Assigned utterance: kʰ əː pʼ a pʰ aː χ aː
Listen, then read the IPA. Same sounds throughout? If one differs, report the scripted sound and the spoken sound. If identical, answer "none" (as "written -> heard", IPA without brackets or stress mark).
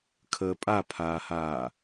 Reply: χ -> h